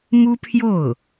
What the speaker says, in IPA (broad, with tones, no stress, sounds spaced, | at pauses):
m u˥ pʰ j o˥˩ ʊ̯